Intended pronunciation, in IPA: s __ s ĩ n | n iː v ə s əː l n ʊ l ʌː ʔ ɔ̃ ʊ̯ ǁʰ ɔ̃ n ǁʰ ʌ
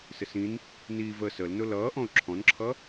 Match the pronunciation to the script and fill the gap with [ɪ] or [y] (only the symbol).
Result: ɪ